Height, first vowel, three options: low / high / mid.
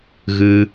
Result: high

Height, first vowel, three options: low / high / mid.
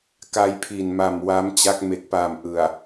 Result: low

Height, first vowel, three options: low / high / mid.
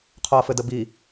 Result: mid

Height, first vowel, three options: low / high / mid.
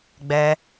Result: mid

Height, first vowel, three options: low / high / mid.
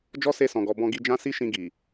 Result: mid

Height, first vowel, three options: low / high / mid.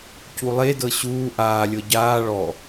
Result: high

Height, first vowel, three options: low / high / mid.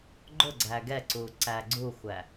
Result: high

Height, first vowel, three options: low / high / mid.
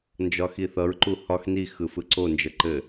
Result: low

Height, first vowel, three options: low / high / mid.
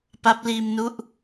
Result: low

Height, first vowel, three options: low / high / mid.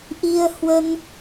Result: high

